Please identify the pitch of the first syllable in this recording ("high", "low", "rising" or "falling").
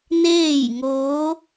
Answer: falling